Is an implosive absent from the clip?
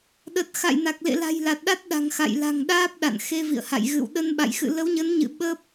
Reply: no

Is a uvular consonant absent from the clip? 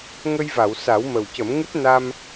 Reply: yes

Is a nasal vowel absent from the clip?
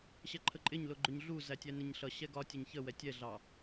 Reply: yes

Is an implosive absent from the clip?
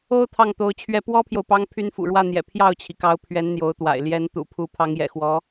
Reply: yes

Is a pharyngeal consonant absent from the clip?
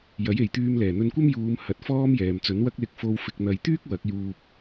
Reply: yes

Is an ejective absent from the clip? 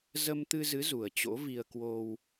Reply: yes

